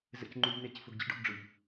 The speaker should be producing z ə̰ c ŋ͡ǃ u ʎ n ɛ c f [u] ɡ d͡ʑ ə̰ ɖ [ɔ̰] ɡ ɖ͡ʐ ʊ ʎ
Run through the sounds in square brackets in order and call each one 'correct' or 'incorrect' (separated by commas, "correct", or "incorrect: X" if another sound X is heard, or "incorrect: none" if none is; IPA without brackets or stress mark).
incorrect: ʊ, correct